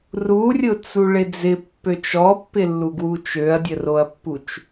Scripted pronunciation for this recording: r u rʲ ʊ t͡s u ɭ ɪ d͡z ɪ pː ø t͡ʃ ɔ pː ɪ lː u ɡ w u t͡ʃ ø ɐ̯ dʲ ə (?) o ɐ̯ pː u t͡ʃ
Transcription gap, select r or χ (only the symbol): r